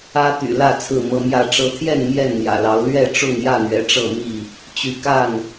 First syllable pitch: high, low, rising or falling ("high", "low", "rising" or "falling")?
high